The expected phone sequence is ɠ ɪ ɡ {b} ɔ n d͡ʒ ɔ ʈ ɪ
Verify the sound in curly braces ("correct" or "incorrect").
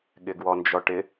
incorrect